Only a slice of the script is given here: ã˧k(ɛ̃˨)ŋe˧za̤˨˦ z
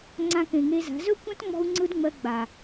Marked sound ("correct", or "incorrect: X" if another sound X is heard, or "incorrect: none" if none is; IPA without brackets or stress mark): incorrect: ẽ˨